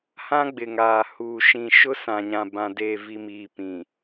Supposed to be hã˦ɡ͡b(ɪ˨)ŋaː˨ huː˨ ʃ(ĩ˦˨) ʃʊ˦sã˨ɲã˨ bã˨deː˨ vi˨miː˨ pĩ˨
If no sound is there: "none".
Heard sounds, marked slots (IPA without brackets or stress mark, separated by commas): ɪ˨, ĩ˨